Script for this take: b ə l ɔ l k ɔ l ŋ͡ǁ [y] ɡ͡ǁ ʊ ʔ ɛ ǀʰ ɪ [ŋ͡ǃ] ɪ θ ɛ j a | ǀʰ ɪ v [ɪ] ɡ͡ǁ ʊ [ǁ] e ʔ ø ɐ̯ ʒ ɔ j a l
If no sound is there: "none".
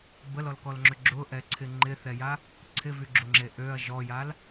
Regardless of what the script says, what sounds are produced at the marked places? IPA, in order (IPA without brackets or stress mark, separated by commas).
ø, ŋ͡ǃ, y, ŋ͡ǁ